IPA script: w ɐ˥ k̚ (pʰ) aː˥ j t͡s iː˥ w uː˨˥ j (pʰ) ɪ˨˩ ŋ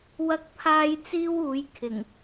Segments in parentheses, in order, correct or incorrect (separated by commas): correct, incorrect